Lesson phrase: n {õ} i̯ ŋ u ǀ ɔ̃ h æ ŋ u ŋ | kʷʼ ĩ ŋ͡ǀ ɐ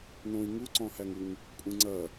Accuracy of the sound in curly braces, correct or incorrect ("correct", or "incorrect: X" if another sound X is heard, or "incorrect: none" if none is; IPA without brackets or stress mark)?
correct